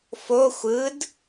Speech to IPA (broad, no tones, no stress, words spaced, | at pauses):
fo xʷɯd